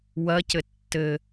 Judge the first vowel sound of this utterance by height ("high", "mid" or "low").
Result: low